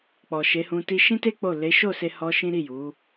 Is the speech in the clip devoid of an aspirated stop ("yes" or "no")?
yes